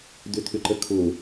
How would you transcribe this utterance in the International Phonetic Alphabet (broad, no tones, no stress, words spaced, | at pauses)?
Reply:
d̪ʏt̪ʰʏǃəkʰʊ